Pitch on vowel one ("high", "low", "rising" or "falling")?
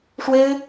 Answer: high